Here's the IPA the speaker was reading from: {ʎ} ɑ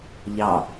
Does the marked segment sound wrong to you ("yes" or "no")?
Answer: no